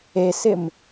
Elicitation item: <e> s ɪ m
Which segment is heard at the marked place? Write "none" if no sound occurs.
e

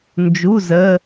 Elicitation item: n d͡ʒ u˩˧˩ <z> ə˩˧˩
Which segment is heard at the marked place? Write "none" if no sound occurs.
z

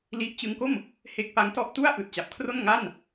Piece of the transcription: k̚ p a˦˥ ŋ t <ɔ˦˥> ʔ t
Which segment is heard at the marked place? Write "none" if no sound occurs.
ɔ˦˥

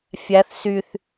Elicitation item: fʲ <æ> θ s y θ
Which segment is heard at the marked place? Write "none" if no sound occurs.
æ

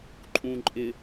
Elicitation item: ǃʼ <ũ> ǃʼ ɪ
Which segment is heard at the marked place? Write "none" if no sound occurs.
ũ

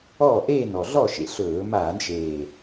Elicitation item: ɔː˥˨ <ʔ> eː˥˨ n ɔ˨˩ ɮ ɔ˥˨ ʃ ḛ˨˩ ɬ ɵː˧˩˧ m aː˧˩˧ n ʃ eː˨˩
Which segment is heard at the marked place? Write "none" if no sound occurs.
ʔ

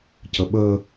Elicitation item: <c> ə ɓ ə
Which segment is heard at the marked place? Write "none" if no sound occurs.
c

